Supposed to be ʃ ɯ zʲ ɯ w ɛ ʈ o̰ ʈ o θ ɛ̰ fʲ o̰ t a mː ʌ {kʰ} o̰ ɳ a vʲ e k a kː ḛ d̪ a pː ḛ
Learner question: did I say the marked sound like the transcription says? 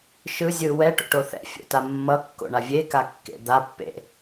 no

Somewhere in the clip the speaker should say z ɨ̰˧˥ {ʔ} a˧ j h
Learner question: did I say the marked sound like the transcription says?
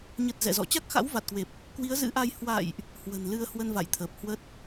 yes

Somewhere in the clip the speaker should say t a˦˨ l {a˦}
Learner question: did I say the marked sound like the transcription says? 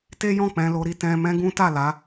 no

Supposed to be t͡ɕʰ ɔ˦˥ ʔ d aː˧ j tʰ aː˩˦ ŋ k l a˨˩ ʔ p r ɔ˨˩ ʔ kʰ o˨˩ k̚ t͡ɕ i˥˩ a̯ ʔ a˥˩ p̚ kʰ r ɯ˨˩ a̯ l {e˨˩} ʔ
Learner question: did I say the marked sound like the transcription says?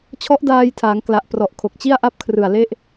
no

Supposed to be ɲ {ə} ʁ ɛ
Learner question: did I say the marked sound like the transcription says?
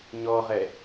no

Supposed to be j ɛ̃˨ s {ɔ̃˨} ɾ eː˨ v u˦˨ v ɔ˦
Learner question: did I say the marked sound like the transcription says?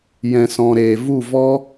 yes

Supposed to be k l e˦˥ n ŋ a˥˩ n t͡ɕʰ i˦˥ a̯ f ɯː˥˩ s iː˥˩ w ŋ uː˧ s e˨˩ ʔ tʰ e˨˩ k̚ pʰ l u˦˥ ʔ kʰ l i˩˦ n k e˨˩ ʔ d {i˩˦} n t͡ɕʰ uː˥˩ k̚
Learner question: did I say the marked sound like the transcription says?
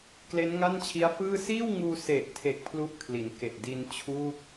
no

